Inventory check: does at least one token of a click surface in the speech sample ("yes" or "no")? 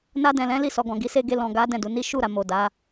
no